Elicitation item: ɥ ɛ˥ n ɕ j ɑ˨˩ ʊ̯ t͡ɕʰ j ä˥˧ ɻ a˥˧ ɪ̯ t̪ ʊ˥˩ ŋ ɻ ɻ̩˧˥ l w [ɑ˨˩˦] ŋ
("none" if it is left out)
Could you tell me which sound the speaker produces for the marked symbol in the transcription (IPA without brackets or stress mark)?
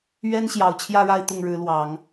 ɑ˨˩˦